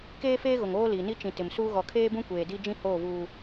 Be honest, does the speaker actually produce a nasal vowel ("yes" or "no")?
yes